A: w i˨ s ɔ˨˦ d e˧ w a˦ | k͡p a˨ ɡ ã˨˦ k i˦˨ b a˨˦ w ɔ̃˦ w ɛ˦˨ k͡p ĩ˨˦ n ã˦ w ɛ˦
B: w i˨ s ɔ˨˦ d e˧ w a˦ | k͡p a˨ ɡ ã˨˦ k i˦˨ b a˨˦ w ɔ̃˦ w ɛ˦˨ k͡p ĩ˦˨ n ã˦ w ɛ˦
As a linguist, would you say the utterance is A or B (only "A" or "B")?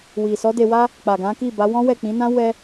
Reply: A